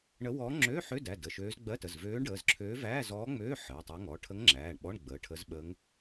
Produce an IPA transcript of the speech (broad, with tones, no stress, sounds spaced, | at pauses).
ɳ ə˧˥ w ɔː˧˥ ŋ͡ǁ øː˧˥˧ ħ ø˧˥˧ d æ˩˧˩ d ə˩˧˩ ʃ øː˧˥ z ɡ͡b ɜ˧˥˧ t ə˩˧˩ z v øː˧˥ ɳ ɖ əː˩˧˩ z ǁʰ øː˧˥ v æː˧˥˧ z ɔː˧˥ ŋ͡m øː˧˥˧ ħ əː˩˧˩ tˤ æ˧˥ ŋ ɔ˩˧˩ ʈʰ ə˧˥ ŋ ŋ͡ǁ æː˩˧˩ ɳ ɓ ɔ˧˥˧ ɳ ɡ͡b əː˩˧˩ ʈʰ ə˧˥ z ɓ əː˧˥ ŋ